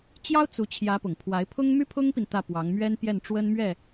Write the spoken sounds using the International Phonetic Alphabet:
t͡ɕ j ɑ˥ ʊ̯ t͡s u˧˥ t͡ɕʰ j ä˧˥ p ʊ˨˩ ŋ pʰ w a˧˥ ɪ̯ pʰ ʊ˥ ŋ m y˥ pʰ ʊ˥ ŋ p i˨ n t̪ ä˥˩ p w ɑ˧˥ ŋ m ɥ ɛ˥ n p j ɛ˥˩ n ʈ͡ʂ w ə˥ n m ɥ ɛ˥˩

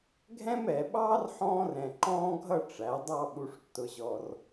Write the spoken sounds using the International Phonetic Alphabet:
ɡʱ ɛ̃˥ m ɛ˩˧ ɓ ɑː˥ r ħ ɔ̃ː˥ r ɛ̃˧ ǃ ɔ̃ː˥ ɡʱ ʌ˥˧ ʈ͡ʂ æ˩˧ dˤ ɑ˥˧ ɓ u˧ ʂ tː ʊ˧ ʑ ɔ˧ r

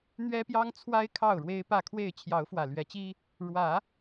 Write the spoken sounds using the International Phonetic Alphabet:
n̪ ɥ ɛ˦ p j ɑ˦ ŋ t͡sʰ w a˦ ɪ̯ kʰ ɑ˥˨ ʊ̯ ɻ w e˦ ɪ̯ p ä˥˨ kʰ w e˥˨ ɪ̯ t͡ɕʰ j ɑ˨˦ ʊ̯ f w ä˨˩ l ɥ ɛ˨˦ t͡ɕ i˦ | ɻ w ä˨˦

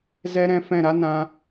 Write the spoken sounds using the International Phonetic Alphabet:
z ɛ˦ ɾ ɛ̃˧ f ɛ̃˦˨ ɾ a˦ n ã˧

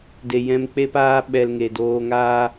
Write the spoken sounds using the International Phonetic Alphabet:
d e˨ j ɛ̃˧ m k͡p e˦ p aː˦ ɓ ɛ˧ l ŋ e˨ d oː˧ ŋ aː˦

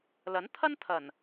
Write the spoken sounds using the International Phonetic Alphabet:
l ɐ˨˥ n t̪ʰ ɐ˥ n t̪ʰ ɐ˨˩ n

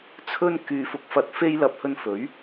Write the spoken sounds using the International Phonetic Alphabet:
t͡sʰ ɵ˧ n k yː˨˧ f ʊ˨˥ k̚ f ɐ˧ t̚ f e˥ j l ɐ˧ p̚ h ɵ˧ n f ɵ˨˥ ɥ

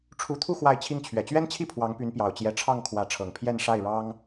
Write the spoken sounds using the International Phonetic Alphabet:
ʈ͡ʂʰ u˧˥ t̪ʰ u˥˧ x w a˥˧ ɪ̯ t͡ɕʰ i˥˩ ŋ t͡ɕʰ ɥ ɛ˨˩ t͡ɕ ɥ ɛ˥ n t͡ɕʰ i˥˩ pʰ w ɑ˧˥ ŋ p y˧˥ n p j ɑ˨˩ ʊ̯ t͡ɕ j ɛ˧˥ ʈ͡ʂʰ ɑ˥˩ ŋ kʰ w ä˧˥ ʈ͡ʂʰ ɤ˨˩ ŋ pʰ j ɛ˥˧ n ʂ a˥˩ ɪ̯ ɻ ɑ˥ ŋ

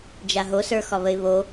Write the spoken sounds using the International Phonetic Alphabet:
d͡ʒ a ɦ o s ə˞ x ɒ β ə ɪ̯ β o

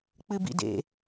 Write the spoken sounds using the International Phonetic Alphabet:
k͡p ɨ b ḭ d ḛ

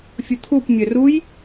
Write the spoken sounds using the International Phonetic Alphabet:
fʲ ə t̪ʰ u p mʲ œ r u j

